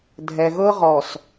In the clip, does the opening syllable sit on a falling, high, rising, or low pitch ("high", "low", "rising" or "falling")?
low